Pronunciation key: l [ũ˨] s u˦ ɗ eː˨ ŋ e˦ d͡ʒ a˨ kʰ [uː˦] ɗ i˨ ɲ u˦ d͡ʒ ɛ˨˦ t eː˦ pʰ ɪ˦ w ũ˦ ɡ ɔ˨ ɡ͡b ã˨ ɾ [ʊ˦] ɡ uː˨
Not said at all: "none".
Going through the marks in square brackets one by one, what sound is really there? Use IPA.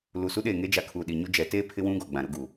u˨, uː˨, ʊ˦

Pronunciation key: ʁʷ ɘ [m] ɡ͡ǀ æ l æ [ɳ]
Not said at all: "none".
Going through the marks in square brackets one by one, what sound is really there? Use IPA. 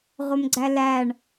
m, ɳ

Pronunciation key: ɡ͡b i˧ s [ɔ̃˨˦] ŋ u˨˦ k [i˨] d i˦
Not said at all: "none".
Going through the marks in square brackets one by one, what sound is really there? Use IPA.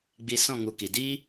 ɔ̃˦˨, i˨

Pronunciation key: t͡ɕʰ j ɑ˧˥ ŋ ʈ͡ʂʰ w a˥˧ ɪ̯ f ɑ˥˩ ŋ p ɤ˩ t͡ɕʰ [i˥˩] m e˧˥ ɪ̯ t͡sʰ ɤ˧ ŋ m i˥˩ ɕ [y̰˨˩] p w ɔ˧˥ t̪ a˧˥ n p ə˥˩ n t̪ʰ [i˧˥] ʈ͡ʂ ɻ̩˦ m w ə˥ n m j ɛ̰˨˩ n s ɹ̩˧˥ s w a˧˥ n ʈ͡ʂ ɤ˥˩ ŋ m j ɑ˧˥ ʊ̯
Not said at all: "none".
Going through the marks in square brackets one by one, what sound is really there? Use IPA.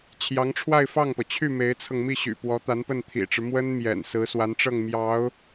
y˥˩, y̰˨˩, ḭ˨˩

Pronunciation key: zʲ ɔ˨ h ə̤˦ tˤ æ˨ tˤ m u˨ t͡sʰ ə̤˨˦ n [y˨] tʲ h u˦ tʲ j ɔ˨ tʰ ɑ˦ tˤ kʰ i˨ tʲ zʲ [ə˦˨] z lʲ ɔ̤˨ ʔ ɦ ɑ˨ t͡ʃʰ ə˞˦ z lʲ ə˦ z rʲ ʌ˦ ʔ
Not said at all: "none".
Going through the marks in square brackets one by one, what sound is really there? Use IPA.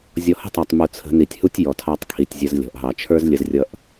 i˨, ə˦

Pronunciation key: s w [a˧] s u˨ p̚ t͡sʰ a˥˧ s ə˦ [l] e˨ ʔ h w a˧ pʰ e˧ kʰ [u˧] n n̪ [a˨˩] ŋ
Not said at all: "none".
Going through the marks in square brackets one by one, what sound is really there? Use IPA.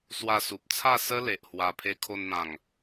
a˧, l, o˧, ã˨˩

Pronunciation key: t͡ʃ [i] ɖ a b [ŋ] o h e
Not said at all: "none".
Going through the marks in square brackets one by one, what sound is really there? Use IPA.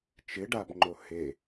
ɪ, ŋ͡ǃ

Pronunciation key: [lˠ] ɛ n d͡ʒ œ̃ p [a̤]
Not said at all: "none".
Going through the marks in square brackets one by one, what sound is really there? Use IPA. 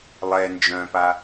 lˠ, a

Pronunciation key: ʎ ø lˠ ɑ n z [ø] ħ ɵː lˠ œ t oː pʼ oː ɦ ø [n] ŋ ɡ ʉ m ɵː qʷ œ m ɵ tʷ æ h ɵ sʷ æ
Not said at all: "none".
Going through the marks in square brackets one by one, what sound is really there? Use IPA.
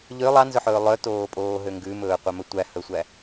ɵ, none

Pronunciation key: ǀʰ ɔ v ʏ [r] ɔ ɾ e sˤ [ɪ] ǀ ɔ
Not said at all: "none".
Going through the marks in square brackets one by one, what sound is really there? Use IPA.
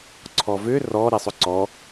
r, ʏ

